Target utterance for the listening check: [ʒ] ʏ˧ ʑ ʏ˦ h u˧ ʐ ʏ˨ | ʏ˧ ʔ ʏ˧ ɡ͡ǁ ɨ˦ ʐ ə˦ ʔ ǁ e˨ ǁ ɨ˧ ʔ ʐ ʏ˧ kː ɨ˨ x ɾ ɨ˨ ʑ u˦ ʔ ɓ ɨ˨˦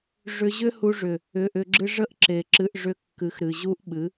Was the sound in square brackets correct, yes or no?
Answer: no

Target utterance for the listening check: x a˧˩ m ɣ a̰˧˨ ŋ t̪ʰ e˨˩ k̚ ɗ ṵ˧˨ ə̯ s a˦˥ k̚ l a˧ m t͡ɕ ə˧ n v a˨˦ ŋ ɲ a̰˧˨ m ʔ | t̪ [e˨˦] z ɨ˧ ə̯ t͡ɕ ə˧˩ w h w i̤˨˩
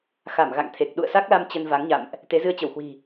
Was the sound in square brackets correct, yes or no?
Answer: yes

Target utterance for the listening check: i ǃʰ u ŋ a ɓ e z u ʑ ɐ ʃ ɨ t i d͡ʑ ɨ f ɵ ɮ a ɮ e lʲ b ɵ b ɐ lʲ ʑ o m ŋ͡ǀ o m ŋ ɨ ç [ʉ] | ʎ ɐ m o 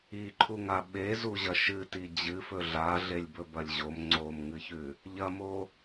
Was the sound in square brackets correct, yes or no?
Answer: yes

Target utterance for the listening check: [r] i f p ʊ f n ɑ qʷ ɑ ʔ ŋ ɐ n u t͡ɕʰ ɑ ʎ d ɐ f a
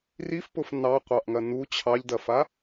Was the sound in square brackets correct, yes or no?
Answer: yes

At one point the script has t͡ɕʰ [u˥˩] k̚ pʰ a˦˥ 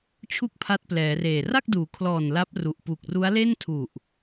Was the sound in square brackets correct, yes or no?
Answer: yes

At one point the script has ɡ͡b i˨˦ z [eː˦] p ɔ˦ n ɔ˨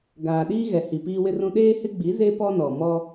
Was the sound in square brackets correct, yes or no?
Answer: no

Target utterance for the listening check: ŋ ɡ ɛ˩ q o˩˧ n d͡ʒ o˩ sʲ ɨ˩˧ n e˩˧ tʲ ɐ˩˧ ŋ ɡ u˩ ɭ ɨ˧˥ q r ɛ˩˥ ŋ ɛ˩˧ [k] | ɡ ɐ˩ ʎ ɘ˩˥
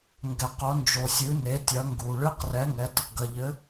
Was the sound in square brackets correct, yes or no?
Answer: no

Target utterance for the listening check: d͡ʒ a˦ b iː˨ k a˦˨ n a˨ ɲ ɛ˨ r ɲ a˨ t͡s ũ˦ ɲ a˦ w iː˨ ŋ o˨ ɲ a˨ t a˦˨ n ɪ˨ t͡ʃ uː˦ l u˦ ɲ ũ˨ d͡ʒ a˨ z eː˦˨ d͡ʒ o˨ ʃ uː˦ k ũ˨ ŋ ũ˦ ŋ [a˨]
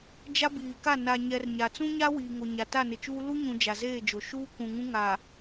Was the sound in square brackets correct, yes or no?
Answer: yes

